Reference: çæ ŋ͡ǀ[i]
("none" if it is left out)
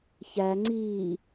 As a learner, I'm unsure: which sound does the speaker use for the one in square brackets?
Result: iː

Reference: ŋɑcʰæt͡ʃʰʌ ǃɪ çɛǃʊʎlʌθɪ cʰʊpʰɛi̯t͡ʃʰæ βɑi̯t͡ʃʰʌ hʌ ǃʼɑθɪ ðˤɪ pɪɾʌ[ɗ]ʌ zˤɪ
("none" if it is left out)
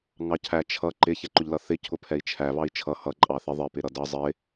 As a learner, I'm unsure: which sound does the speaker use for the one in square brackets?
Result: d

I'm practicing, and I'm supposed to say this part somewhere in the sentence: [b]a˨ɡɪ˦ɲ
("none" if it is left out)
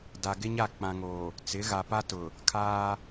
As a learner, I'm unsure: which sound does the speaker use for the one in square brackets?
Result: d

